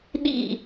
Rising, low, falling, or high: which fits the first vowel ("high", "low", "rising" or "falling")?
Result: falling